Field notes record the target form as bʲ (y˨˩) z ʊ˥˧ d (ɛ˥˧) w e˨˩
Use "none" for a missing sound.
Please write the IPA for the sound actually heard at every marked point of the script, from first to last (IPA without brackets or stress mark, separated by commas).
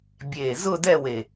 e˨˩, ɛ˥˧